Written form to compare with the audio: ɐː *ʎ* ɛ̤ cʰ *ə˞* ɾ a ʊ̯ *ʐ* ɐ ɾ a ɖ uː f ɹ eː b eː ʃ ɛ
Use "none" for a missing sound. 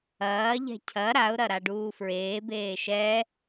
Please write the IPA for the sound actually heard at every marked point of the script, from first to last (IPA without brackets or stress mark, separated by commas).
ʎ, ɐ, ɾ